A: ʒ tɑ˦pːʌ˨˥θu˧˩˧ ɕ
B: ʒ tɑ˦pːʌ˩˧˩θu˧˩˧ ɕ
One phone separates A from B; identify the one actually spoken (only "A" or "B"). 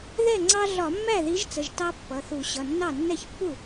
B